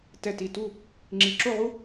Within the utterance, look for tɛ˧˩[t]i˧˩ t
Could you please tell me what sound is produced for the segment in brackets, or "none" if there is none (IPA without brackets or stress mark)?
t